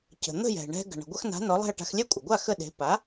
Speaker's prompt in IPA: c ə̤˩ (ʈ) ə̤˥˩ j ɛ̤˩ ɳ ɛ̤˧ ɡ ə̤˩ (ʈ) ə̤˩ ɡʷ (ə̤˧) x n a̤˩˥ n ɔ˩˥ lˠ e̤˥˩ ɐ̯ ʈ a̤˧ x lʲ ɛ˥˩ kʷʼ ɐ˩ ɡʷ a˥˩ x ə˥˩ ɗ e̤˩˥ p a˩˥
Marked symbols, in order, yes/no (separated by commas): no, no, no